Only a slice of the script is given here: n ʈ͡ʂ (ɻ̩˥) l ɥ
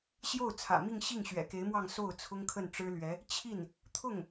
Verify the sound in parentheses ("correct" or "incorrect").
correct